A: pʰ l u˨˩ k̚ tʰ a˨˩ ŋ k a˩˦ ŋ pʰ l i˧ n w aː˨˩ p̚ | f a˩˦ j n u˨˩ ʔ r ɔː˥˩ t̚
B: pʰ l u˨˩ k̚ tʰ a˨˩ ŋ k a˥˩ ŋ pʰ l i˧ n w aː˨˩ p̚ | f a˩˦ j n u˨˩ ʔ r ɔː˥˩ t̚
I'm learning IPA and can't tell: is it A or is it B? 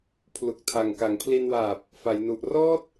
A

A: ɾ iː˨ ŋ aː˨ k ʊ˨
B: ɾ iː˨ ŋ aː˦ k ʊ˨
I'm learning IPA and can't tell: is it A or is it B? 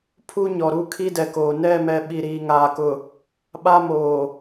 A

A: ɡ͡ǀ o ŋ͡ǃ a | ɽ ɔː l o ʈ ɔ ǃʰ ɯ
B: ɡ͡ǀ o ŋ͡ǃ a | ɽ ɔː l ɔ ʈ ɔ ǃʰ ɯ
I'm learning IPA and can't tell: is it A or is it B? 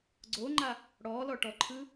B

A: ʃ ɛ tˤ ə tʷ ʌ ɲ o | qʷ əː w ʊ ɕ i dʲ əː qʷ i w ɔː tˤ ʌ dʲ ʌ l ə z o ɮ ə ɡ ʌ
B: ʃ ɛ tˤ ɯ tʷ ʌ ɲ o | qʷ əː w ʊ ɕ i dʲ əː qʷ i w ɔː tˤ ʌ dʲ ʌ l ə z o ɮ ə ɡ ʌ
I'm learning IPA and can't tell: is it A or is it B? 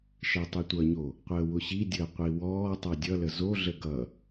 B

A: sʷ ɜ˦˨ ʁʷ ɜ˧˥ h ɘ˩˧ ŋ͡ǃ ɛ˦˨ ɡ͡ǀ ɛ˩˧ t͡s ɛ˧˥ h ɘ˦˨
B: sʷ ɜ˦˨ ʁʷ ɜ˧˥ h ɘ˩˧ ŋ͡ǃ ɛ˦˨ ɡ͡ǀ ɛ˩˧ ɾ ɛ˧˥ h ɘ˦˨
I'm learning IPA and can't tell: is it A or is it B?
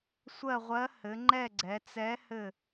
A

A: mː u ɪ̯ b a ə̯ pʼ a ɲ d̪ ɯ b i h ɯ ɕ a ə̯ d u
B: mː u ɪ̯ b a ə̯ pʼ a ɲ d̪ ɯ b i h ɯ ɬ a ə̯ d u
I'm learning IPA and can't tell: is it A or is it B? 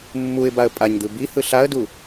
B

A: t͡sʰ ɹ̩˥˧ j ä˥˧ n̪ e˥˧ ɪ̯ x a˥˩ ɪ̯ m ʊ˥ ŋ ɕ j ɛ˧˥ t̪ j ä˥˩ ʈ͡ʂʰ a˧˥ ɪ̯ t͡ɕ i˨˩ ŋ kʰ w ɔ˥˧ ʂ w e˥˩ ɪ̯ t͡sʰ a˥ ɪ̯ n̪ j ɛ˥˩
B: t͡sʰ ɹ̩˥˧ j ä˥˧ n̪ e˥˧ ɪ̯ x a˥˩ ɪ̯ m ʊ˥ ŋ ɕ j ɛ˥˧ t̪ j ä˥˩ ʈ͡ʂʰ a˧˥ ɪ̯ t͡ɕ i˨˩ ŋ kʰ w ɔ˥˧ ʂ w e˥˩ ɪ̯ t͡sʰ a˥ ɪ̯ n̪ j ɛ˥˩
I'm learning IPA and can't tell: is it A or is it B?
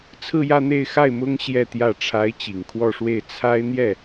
B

